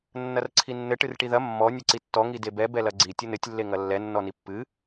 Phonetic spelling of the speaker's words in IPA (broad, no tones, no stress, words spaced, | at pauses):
nːɐrǀʰinːɘ ʈɨrʈiðɐ mːɔ nʲɘǀitːɔ ŋidebɛ bɛlɐɡ͡ǀi tʲɘnɘtʲ lːeŋɐlːɛ nːɔnipːɨ